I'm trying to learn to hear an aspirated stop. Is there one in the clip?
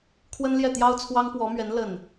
yes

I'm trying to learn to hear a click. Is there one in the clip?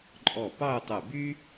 yes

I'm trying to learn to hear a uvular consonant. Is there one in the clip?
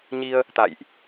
no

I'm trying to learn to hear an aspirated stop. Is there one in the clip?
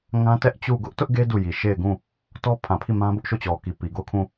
yes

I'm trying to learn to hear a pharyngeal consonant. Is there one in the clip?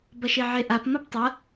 yes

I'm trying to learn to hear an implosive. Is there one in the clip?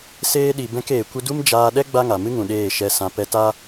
yes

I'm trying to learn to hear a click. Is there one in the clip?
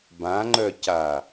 yes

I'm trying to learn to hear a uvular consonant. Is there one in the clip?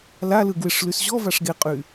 yes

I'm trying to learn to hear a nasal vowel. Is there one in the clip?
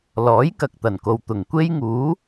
no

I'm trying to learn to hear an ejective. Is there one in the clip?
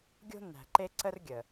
no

